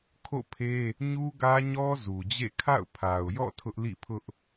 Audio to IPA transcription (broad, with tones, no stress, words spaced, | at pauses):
kʰo̰˦˨pʰe˦ | ɲu˦ɡä˦ɲɔ˦ zu˨d͡ʑḛ˦˨ kʰa̰˦˨ʊ̯pʰa˨ʊ̯jɔ̰˦˨ tʰʊ˦ʔlḭ˦˨pʰʊ˦ʔ